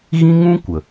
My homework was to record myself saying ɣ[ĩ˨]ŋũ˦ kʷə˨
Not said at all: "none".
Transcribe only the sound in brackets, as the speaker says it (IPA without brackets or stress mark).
ĩ˦